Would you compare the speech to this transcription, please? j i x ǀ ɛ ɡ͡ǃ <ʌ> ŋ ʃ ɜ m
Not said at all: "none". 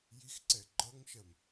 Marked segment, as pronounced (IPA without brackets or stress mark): ʌ